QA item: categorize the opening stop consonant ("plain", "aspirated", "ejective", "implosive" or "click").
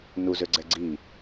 click